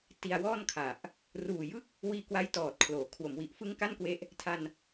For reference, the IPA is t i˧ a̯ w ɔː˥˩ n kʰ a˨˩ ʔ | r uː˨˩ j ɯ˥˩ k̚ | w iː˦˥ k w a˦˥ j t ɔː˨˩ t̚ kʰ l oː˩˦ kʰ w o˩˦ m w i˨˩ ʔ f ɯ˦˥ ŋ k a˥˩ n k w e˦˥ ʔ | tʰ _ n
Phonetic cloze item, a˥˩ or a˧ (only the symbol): a˧